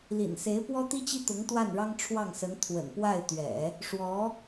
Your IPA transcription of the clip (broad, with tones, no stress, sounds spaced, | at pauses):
l ḭ˨˩ n s e˧˥ ɪ̯ p w ɔ˥ t̪ i˥ t͡ɕ i˥ t̪ ʊ˧˥ ŋ t̪ w a˥˩ n ɻ ɑ˥ ŋ ʈ͡ʂʰ w ɑ˥˩ ŋ s ə˧˥ n t̪ʰ w ə̰˨˩ n p w a˥˩ ɪ̯ t̪ ɥ ɛ̰˨˩˦ | ʂ w ɔ˧˥